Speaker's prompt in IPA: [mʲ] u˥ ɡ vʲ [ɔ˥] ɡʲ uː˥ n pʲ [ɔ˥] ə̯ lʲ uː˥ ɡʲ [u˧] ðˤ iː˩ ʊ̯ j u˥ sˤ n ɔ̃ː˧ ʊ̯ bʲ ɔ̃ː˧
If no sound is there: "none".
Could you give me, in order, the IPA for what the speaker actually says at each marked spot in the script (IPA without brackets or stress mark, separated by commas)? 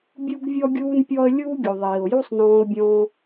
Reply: bʲ, ɔ˥, ɔ˥, u˩